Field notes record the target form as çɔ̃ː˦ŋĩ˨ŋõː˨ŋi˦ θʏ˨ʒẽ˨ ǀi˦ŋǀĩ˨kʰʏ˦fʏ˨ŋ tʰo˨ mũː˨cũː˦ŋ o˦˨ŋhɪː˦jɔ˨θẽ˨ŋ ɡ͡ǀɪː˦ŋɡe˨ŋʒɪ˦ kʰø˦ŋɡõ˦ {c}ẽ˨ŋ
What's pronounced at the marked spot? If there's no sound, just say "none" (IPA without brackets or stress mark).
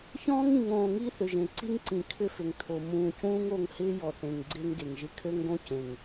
c